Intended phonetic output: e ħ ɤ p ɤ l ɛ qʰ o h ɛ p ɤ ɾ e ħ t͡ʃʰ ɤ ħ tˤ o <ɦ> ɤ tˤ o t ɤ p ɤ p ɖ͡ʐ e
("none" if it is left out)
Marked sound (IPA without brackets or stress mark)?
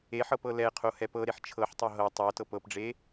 ɦ